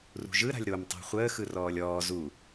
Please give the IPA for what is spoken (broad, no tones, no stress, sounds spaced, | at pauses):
r ṳ ʒ ɯ ɾ a̤ lʲ ɾ o m tˤ a̤ χʷ əː x ɯ r ɔː lʲ ɔː z u